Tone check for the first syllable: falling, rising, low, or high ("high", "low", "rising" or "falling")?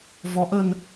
rising